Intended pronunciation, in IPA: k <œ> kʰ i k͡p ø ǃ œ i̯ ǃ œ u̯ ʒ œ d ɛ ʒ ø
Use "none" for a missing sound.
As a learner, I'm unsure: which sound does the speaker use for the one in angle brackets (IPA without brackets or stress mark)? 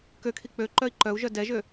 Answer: ø